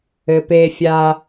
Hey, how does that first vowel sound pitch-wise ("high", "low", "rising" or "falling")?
low